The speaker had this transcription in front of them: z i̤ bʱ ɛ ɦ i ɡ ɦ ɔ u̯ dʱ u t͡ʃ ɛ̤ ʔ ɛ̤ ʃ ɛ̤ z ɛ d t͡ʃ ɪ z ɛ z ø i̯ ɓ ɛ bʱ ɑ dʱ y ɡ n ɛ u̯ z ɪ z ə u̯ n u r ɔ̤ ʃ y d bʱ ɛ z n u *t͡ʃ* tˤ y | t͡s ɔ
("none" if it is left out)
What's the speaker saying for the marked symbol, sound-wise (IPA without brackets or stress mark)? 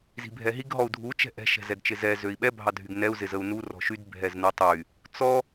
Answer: none